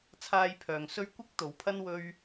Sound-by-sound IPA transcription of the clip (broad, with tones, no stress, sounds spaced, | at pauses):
t͡sʰ aː˧ j pʰ œː˨ ŋ s ɵ˥ ɥ kʷ ɪ˥ k̚ t̪ o˨˥ w pʰ ɐ˥ n w ɵ˥ ɥ